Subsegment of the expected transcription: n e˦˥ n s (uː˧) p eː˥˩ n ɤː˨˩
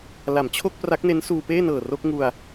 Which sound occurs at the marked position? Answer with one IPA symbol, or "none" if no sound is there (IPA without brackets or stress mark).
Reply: uː˧